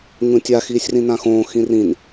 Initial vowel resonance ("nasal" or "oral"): nasal